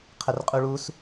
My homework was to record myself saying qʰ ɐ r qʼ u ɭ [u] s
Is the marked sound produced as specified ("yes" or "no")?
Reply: yes